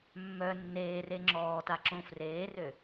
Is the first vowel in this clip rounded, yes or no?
yes